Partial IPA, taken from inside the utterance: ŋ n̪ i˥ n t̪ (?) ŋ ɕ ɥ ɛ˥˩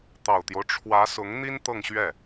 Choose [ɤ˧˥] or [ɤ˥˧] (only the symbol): ɤ˥˧